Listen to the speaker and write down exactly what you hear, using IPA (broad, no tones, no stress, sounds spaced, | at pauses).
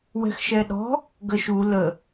w ɛ̤ x ʃ ɛ ɗ ɔ̤ | ɡ ə ʃ u l ə